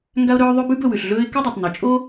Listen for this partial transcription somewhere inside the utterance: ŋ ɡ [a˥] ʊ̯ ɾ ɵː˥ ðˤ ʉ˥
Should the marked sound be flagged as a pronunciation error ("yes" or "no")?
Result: no